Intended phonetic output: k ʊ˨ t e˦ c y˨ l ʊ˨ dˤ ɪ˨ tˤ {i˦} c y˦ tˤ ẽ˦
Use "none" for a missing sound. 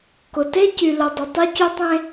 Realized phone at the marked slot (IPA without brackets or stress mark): y˦